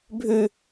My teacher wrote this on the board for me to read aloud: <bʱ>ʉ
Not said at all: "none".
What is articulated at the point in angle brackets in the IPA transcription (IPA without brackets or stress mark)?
bʱ